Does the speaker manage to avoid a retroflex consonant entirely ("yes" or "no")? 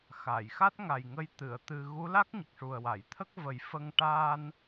no